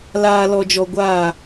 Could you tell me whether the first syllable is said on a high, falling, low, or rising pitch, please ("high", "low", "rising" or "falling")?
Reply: low